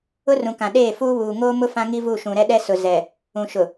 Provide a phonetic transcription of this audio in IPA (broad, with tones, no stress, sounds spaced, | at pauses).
ʊ˦ r ũ˨ k ã˨ ɗ eː˦˨ f uː˦ β uː˨ ŋ oː˦ m ʊ˦ f ã˦ ŋ i˦ v u˦˨ ʃ ũ˨ ɾ ɛ˦ ɗ ɛ˦ s ʊ˨ z ɛ˨ | ũ˨ ʃ ʊ˨